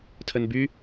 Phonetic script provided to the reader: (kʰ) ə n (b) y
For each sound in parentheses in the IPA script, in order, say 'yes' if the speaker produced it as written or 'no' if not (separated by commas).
no, yes